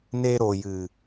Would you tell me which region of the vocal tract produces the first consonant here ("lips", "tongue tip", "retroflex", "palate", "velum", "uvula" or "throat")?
tongue tip